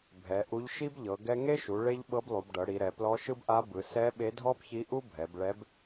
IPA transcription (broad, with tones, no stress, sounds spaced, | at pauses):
bʱ ɛ˩˧ ʔ u˧˥ ʎ ʃ i˥ b ʎ ɤ˩˧ ɡ ɛ˥ ŋ e˥ ʃ u˩˧ ɭ e˥ ʎ ɓ ɤ˧˥ b lˠ u˩˧ b ɖ ɤ˩˧ ɽ i˩˧ ɾ ɛ˩˧ p l ɔ˧˥ ʃ ɯ˥ b ʔ a˧˥ b ɯ˩˧ s ɛ˧˥ ɓ e˧˥ dʱ ɔ˥ b ç i˧˥ ʔ u˥ bʱ ɛ˩˧ b ɭ ɛ˧˥ b